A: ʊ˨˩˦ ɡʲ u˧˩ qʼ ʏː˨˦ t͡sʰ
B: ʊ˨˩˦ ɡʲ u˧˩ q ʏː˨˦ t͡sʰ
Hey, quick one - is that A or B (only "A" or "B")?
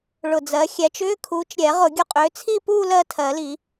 A